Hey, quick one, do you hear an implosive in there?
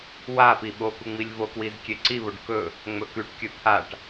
yes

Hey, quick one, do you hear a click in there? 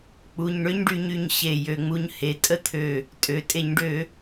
no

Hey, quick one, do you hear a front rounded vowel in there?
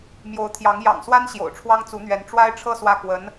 no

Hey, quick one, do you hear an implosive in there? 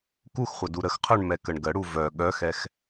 yes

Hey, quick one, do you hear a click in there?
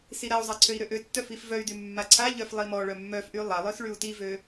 yes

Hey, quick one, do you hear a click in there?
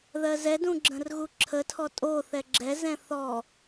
yes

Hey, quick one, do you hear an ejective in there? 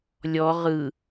no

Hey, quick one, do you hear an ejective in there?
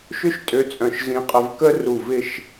yes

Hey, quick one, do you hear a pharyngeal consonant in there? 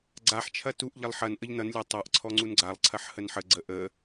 yes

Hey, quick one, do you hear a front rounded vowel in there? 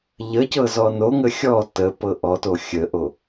no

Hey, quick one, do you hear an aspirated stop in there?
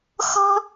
no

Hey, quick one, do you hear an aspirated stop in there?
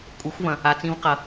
no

